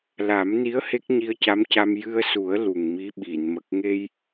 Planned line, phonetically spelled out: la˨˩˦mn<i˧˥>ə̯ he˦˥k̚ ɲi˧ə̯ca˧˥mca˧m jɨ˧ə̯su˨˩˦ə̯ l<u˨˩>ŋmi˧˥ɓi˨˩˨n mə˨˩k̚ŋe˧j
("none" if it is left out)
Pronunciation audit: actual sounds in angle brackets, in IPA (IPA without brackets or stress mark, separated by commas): i˧˥, u˨˩